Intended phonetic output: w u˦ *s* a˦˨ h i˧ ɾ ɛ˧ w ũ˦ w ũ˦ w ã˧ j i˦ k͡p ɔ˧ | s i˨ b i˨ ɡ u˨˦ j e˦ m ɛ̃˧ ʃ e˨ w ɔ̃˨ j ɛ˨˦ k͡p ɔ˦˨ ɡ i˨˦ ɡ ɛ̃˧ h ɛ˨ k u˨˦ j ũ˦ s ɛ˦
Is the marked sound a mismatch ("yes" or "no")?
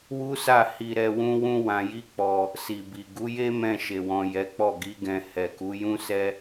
no